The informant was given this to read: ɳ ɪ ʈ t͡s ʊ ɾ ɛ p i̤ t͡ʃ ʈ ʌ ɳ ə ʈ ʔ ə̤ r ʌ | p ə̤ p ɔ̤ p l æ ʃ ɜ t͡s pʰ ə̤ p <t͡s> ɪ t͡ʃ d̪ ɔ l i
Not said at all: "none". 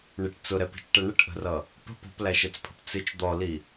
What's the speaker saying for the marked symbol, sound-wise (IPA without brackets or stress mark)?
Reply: t͡s